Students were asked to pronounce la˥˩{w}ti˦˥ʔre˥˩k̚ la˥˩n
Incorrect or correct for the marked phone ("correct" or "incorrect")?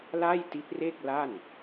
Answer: incorrect